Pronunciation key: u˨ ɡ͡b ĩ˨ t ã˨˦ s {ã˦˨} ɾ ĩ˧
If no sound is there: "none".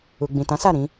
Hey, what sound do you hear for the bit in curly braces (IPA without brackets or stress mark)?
a˦˨